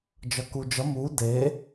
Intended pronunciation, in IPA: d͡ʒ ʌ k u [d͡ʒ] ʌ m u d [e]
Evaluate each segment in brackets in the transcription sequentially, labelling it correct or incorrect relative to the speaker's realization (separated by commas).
correct, correct